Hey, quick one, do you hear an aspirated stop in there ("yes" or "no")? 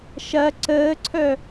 yes